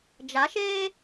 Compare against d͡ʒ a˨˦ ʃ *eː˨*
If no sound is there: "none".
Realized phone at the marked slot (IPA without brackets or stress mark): eː˦